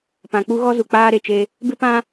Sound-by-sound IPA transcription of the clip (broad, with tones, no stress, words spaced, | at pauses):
pã˨k͡pu˦ ɣɔ˦zu˨ k͡paː˦ɾe˨t͡ʃe˦ | bɪ˦pã˦